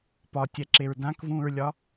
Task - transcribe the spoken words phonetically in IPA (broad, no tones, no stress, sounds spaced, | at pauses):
p ɒ tʲ ɛ ǁ e ɹ d ã k v ũː ɹ lʲ ɒ